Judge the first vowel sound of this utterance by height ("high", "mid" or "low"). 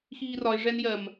high